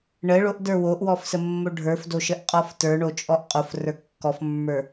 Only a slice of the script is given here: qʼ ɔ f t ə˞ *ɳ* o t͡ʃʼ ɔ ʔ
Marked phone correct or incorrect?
correct